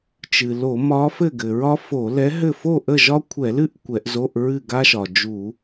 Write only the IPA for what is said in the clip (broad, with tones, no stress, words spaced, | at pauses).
t͡ʃɨ˩lo˧˩˧ mɒ˧˥fɘ˥˨ɡɘ˩ɹɒ˥ fo˧˩˧lɛ˧˥ɦɘ˥˨ fo˥˨ʔə˥˨ʒɒ˥ kʷʰɛ˧˩˧ lɨ˥ʔ kʷɛ˧˩˧ʔzo˧˥˧ʔ ɹɨ˥˨ ɡa˥ʃɒ˩ d͡ʒu˧˩˧